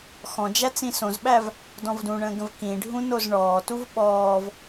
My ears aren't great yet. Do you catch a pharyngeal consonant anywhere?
no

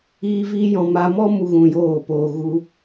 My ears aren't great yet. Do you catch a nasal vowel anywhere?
yes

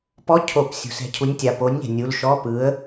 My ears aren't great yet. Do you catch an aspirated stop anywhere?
yes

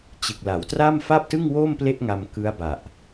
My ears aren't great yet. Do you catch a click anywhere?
no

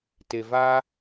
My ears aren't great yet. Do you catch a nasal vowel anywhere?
no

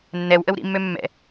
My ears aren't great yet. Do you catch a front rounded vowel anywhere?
yes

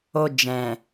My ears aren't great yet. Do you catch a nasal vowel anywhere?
yes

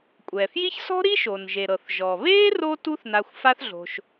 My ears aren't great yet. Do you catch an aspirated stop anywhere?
no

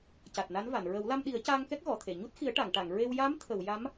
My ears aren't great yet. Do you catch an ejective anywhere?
no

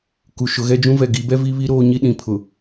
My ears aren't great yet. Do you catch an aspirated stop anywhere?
yes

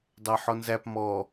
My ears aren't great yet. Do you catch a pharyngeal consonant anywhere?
yes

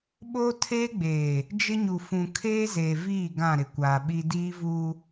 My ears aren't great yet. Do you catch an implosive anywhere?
yes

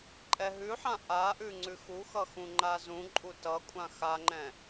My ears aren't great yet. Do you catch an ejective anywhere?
yes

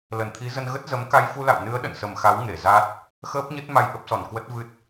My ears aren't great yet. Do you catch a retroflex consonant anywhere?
no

